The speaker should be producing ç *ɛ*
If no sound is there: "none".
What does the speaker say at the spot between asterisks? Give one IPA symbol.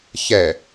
ɛ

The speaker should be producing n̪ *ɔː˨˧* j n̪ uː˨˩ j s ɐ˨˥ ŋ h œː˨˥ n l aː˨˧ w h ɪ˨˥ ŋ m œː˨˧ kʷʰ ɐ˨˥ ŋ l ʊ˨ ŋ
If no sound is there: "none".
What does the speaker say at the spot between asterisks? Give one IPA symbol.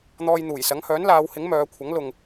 ɔː˧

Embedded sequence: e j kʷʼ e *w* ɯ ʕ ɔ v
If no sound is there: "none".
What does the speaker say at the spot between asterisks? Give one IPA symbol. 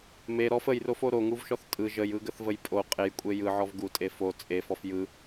j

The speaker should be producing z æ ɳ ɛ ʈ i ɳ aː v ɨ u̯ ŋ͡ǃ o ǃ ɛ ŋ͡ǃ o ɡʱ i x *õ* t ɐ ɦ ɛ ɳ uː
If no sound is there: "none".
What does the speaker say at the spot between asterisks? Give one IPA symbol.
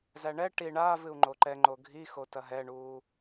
o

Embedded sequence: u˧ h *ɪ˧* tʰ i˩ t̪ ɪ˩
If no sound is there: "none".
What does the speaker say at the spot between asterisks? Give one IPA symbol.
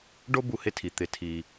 ɪ˧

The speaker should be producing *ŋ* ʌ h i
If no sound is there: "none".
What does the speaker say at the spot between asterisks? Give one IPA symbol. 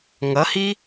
ŋ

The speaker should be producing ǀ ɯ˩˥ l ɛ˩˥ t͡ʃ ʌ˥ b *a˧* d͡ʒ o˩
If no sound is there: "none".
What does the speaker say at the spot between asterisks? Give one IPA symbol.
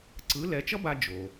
a˧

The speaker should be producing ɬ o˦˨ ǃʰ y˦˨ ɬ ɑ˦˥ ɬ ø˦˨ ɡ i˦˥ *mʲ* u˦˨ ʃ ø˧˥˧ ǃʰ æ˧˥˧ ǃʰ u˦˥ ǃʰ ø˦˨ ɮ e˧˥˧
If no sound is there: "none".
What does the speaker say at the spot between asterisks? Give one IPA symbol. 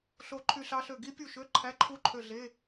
pʲ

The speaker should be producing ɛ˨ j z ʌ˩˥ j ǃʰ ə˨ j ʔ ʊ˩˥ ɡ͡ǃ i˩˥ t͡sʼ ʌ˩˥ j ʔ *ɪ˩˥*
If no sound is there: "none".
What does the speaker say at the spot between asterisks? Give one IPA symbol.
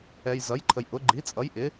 ɪ˩˥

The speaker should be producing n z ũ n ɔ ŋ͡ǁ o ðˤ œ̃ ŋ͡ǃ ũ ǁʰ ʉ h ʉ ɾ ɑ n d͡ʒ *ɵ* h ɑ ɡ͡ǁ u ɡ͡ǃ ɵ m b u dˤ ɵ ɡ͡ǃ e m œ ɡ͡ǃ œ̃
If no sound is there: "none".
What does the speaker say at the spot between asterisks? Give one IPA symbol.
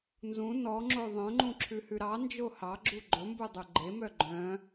o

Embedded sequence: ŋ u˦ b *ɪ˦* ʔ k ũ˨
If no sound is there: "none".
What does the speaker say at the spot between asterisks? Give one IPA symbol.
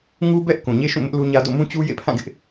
ɛ˦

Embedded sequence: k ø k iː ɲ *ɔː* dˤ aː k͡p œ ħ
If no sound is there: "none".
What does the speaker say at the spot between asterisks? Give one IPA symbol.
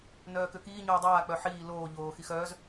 oː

